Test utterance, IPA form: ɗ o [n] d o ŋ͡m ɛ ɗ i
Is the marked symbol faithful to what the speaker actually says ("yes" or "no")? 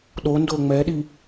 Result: yes